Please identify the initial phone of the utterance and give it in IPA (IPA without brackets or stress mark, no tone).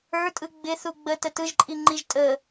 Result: ə˞